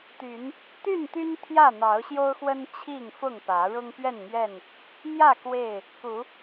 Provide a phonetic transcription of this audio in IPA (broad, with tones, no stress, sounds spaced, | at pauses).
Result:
t̪ y˨˦ n | t̪ y˥˨ n t̪ y˦ n t̪ʰ j ä˥˨ n̪ ɑ˨˦ ʊ̯ ɕ j o˦ ʊ̯ x w ə˦ n t͡ɕʰ i˥˨ ŋ f ʊ˥˨ ŋ p ä˨˦ ɻ ʊ˦ ŋ p ɥ ɛ˥˨ n m ɥ ɛ˥˨ n | m j ä˥˨ k w e˥˨ ɪ̯ | k u˨˦